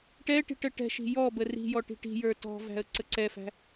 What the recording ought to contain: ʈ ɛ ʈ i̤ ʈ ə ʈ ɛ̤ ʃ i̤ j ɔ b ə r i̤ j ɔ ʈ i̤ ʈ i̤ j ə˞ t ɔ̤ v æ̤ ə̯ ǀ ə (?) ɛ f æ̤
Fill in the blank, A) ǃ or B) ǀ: B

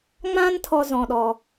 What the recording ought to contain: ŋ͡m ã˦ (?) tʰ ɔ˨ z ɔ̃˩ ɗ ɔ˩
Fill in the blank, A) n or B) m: A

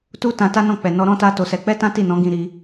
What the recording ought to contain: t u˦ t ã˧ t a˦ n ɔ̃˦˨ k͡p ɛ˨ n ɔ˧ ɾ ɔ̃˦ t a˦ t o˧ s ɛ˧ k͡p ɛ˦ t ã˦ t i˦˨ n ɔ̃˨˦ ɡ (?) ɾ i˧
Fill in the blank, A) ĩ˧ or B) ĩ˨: A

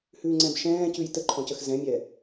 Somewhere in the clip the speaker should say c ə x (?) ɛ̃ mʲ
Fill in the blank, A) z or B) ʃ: A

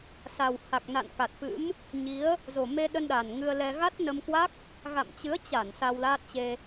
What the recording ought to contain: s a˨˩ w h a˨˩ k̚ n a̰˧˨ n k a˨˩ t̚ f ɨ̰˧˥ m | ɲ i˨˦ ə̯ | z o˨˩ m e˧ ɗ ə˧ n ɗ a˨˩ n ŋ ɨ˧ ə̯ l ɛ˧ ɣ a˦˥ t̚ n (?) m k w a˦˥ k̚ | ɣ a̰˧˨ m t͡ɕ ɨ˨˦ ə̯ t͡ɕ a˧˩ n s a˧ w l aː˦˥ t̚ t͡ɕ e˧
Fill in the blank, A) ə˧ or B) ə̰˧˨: A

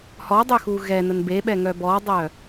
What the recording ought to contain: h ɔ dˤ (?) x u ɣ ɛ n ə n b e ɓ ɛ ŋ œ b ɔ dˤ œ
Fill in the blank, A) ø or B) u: A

